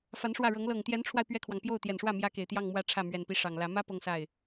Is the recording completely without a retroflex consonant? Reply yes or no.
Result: no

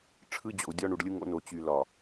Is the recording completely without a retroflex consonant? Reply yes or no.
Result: no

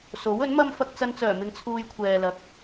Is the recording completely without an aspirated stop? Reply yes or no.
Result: no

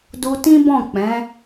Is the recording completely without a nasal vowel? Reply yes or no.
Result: no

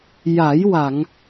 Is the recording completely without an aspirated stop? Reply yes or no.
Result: yes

